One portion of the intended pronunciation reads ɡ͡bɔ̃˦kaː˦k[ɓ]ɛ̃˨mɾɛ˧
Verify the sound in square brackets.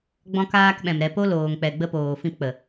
correct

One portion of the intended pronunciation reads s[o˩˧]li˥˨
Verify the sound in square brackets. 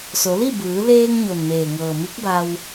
correct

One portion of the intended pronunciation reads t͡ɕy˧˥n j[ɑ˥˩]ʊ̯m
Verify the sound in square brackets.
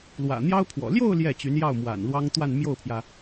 correct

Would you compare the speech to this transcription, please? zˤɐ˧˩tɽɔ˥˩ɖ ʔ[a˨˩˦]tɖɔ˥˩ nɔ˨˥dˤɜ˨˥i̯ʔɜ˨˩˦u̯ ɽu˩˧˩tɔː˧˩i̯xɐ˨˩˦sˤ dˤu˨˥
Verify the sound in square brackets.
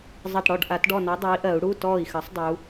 correct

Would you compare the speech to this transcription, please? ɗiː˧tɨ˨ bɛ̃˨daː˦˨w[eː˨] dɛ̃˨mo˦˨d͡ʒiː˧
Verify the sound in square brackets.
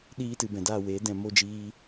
incorrect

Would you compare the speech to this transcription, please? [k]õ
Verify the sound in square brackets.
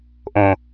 incorrect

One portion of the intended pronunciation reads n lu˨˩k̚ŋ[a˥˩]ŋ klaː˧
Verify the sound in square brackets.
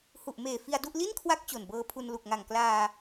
incorrect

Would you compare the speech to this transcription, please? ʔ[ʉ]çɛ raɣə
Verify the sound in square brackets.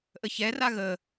incorrect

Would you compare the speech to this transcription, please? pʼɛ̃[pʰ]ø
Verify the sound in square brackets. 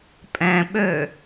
incorrect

